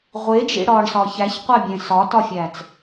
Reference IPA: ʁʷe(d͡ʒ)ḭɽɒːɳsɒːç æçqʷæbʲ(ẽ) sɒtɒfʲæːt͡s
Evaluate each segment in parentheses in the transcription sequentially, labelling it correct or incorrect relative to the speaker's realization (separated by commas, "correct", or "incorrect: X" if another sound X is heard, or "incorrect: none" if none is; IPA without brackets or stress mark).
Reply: correct, correct